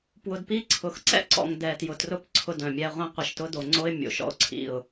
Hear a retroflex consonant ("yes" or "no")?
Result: no